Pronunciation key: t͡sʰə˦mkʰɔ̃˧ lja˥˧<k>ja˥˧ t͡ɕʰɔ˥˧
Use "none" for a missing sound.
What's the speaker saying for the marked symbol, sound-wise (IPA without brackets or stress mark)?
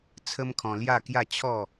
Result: k